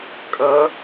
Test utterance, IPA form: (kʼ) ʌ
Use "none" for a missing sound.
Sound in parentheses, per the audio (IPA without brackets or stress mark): kʼ